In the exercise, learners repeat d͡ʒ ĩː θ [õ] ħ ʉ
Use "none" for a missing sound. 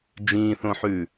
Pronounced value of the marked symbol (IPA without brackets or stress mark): õ